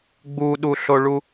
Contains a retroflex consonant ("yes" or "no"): yes